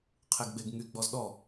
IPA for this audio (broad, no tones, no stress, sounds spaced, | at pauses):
qʰ e ɡ ɡ͡b e ɡ ŋ y ɡ͡b ɔ z ɗ ɔ